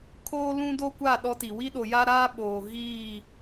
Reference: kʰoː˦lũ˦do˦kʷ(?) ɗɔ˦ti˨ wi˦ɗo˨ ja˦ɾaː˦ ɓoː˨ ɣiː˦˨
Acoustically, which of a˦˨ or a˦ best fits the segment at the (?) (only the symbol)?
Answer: a˦˨